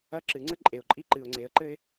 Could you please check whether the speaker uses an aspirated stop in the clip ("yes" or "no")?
no